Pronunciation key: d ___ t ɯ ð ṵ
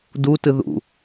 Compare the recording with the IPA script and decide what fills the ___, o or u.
u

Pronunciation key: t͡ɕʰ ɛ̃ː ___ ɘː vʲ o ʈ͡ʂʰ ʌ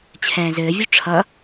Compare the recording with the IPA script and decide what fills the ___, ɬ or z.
z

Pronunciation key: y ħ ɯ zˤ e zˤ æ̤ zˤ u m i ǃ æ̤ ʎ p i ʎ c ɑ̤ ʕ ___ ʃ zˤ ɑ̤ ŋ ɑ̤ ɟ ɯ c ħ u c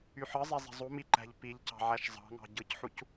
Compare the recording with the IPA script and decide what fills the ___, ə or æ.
æ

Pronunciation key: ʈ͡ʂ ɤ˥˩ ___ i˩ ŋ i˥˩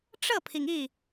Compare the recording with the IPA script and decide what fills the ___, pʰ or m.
pʰ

